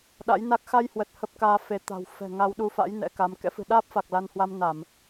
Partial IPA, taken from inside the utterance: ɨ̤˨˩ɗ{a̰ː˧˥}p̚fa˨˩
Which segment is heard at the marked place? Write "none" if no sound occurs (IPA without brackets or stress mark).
aː˦˥